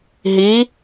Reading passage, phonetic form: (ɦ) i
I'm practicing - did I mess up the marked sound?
no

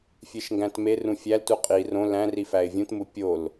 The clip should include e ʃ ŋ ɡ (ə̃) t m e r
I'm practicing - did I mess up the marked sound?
yes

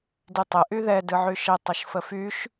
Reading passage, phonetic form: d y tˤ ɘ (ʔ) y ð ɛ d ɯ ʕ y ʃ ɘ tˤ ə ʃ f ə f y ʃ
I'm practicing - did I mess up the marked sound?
no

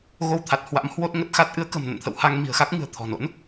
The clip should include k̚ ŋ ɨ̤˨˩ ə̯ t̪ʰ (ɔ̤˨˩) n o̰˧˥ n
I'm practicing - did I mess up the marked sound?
no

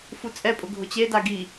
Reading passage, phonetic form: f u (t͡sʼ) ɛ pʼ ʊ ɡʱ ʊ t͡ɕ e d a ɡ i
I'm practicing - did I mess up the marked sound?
no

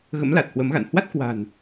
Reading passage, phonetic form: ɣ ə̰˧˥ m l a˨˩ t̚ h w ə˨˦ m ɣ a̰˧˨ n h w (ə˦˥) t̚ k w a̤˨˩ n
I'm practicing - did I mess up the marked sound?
yes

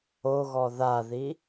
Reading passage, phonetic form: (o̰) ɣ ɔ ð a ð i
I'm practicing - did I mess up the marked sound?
yes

